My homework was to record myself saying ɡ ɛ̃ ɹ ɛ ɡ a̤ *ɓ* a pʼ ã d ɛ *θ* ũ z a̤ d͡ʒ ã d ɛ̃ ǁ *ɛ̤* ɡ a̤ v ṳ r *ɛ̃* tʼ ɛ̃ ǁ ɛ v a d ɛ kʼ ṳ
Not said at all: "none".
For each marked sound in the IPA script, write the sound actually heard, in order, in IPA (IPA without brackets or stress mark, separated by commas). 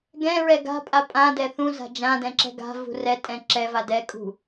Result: pʼ, θ, ɛ̤, ɛ